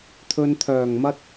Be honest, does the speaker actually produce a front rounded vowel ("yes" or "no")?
yes